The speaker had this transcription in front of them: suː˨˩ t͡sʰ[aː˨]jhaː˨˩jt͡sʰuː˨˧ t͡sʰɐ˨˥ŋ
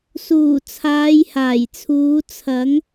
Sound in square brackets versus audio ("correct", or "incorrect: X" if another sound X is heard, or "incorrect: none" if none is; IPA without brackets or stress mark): incorrect: aː˨˧